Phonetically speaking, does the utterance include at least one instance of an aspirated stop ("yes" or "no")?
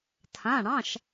yes